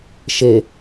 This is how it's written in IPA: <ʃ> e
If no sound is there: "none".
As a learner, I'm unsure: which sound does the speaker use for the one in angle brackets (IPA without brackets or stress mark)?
ʃ